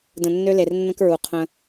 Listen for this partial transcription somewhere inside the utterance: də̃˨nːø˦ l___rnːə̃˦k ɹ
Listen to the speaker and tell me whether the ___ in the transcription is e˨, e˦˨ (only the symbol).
e˨